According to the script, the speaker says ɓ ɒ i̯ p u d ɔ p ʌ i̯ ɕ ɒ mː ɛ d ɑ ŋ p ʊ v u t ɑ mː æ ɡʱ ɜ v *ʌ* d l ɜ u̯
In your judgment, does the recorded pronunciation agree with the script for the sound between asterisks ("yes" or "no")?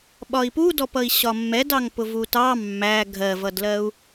yes